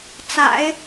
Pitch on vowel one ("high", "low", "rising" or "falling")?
low